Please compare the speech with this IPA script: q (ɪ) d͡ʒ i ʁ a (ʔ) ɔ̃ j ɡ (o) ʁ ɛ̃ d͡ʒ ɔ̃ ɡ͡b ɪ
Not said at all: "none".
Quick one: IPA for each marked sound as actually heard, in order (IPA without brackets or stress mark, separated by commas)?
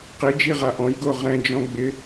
i, ʔ, o